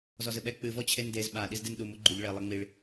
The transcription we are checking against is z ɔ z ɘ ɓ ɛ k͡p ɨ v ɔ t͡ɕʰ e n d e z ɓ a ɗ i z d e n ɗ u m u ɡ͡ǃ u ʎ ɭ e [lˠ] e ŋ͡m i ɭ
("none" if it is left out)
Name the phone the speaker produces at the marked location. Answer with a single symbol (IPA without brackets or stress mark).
lˠ